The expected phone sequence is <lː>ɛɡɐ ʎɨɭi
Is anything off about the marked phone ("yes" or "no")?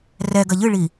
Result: yes